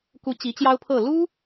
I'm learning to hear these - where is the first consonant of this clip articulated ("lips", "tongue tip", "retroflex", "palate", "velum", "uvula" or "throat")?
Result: velum